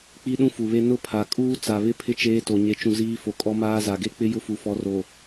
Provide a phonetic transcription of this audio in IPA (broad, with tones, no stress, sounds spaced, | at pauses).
k͡p i˦ ɗ ũ˦ f u˨ β e˦ n ʊ˦ pʰ a˨ kʼ uː˦ t͡s a˨ β ɪ˦ pʰ ɪ˦˨ t͡ʃ eː˦ t o˨ ɲ e˨˦ t͡ʃ ũ˨ z iː˦ f o˨ kʼ ɔ˦ m aː˦ z a˨ ɡ e˦ k͡p ɪ˦ j ʊ˦ f u˨ f ɔ˨˦ r o˨